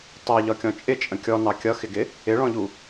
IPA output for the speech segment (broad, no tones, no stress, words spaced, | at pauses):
tˤɜʎɒkʲɔ̃ t͡ʃʼɪt͡ʃʼə̃ kʲɔnɑ kʲʌxɪɡɪ | ɪɭɔ̃ʎu